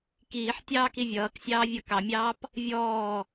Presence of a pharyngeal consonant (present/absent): present